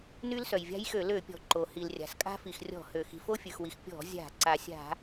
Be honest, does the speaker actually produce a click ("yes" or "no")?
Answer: yes